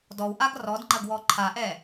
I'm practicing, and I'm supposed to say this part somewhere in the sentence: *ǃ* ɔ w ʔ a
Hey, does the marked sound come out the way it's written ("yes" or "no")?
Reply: no